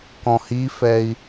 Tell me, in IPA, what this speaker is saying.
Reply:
k ɔ̃ h i f ɛ i̯

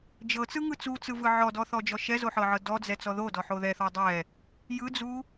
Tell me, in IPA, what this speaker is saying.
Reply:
d͡ʒ ɤ t͡s ɯ ŋ ɯ t͡s u t͡s ɯ v ɯ ʕ ɔ d ɔ θ ɔ d͡ʒ ɔ ʃ ɛ z o ħ ɤ ʕ ɤ d ɔ d͡z ɛ t͡s ɔ ð o d ɔ ħ o ð ɛ θ ɔ dˤ ɛ | j ɯ d͡z u

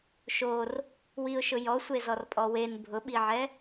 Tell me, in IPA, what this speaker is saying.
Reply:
ʃ o r | w i ʊ̯ ʃ ʊ j ɔ sʷ e z ɔ r pʼ ɔ w e n bʱ ʊ ɓ i ʕ ɛ

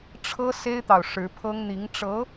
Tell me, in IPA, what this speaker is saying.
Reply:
ʈ͡ʂʰ ɤ˥ s e˥ ɪ̯ t̪ ɑ˨ ʊ̯ ʂ ɻ̩˧˥ pʰ ɤ˥ ŋ n̪ i˧˥ ŋ ʈ͡ʂ ɤ˧˥

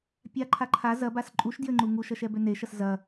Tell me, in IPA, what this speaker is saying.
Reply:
pʲ a ǃʰ a ǃʰ a z ɐ b a s ǃʼ u ʃ d j ɘ ŋ͡ǃ u ŋ u ʃ ɐ ʃ ɛ b ø n e ʃ ɐ s z ɐ

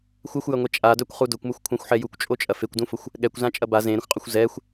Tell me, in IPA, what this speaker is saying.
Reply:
xʷ ɐ xʷ j ɐ ŋʷ ɛ t͡ʃʼ a d œ kʷ χ u d ʊ kʷ m ʊ xʷ kʷʰ ã xʷ ħ ɛ j u kʷ t͡ʃʼ o t͡ʃʼ ɐ f e kʷ d ũ f ʊ xʷ | ɠ ɛ kʷ z ã t͡ʃʼ ɐ b a z ẽ ɾ ə̃ xʷ qʼ ʊ xʷ z ɛ xʷ

